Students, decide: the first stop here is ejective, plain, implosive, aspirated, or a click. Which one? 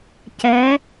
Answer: plain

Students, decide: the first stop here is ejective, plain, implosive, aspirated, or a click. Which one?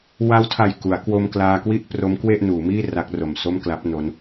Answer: aspirated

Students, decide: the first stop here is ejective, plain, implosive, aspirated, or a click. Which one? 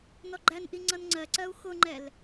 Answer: click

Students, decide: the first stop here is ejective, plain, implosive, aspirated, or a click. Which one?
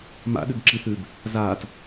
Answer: implosive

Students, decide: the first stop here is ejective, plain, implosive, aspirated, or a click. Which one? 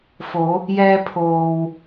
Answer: aspirated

